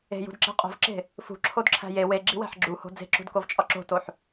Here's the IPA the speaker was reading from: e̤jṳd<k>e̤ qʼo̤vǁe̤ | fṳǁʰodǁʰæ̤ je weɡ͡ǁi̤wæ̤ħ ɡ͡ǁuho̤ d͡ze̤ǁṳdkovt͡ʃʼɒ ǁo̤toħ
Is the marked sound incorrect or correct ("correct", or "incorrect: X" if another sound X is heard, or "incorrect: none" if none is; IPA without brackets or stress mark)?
incorrect: ǁ